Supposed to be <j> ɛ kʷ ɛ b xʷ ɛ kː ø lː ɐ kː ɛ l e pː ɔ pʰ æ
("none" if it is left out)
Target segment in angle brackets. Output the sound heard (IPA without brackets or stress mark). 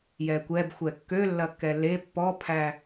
j